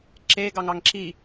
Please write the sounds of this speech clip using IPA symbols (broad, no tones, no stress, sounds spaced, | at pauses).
ǁ e ɡ ɑ ŋ ɑ ŋ ǁ i